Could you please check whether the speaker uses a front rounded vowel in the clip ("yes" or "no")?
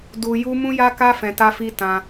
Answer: no